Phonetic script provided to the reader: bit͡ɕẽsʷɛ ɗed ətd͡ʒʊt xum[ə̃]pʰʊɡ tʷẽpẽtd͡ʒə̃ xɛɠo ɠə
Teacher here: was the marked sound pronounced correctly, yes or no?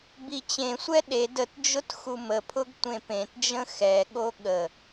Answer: no